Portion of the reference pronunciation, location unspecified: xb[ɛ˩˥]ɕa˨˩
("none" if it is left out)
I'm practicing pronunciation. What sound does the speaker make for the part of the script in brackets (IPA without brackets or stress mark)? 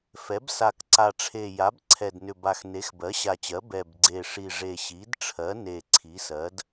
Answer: ɜ˩˥